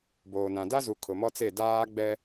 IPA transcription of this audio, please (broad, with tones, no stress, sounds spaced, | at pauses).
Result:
b oː˨ n ã˨ d a˦ z u˨ kʰ ʊ˨ m ɔ˦ t͡s e˦˨ d aː˦ ɡ͡b ɛ˦